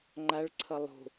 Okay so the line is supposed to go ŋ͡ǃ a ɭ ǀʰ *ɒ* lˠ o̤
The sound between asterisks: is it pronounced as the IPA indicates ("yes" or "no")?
no